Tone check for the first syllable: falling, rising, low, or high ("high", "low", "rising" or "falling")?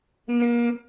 high